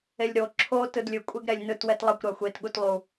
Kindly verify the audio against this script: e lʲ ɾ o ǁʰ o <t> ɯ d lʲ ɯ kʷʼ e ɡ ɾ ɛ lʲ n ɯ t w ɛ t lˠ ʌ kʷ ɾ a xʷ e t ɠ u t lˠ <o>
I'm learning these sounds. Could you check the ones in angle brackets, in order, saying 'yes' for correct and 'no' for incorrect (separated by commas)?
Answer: yes, no